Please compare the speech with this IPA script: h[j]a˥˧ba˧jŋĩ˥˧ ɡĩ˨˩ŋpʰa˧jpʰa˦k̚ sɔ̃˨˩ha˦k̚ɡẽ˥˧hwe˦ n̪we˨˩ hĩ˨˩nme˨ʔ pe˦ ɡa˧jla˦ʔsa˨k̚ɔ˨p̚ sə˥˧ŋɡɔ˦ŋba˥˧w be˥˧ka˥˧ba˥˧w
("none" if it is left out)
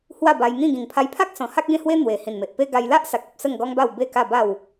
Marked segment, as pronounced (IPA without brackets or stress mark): w